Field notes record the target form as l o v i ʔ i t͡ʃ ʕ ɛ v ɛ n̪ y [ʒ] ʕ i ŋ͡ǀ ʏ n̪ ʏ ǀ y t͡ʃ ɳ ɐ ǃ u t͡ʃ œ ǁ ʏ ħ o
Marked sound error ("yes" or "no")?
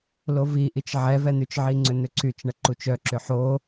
yes